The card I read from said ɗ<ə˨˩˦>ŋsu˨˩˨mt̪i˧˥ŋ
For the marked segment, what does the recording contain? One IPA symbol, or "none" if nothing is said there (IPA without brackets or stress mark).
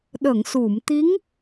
ə˨˩˨